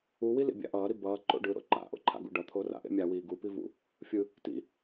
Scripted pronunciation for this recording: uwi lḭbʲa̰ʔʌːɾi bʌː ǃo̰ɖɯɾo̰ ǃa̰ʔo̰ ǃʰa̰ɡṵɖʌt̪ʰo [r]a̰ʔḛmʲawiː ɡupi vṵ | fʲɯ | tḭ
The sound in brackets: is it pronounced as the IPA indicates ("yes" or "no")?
yes